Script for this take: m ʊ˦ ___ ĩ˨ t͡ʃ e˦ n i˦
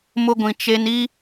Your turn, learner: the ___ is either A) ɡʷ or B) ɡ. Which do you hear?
A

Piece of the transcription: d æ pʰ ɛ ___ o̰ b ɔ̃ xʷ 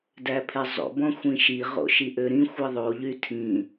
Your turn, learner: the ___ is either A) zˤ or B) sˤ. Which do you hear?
A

